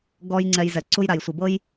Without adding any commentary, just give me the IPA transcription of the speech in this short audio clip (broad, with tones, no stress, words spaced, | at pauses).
ɡɔ˦jŋ͡ǀɛ˧jzɛ˨ ǀu˧jɾa˨jsʷɯ˨bɤ˦j